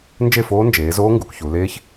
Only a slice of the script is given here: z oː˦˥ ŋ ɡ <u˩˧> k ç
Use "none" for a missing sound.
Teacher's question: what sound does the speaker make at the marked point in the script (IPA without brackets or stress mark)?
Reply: u˩˧